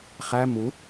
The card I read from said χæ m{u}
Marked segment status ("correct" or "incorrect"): correct